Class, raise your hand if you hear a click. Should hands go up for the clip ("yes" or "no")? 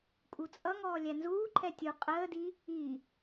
yes